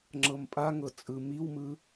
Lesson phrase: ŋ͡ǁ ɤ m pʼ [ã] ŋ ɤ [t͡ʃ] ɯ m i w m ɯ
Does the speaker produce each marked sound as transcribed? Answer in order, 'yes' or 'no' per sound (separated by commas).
no, no